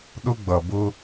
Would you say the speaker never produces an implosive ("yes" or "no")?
no